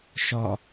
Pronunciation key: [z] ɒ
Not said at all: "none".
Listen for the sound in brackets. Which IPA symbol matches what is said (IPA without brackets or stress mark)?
ʃ